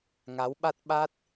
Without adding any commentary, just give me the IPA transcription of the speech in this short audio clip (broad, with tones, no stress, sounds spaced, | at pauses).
ŋ a˨˦ w ɓ a˦˥ t̚ ɓ a˦˥ t̚